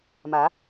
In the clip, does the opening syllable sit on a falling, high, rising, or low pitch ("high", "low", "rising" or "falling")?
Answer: rising